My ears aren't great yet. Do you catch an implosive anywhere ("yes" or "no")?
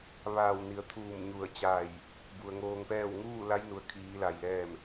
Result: no